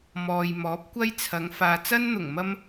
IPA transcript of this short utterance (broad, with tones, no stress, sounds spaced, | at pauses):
m ɔː˨ j m ɔː˨˥ p̚ kʷ ɐ˥ j t͡sʰ ɐ˨˧ ŋ f aː˨ t͡s ɐ˥ n n̪ ʊ˨˩ ŋ m ɐ˧ m